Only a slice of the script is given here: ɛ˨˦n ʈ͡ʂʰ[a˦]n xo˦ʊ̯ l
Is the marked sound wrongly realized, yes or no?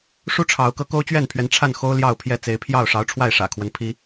yes